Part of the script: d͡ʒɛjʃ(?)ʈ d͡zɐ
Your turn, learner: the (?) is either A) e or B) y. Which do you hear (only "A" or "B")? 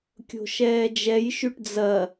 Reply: B